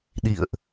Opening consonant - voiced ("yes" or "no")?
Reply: yes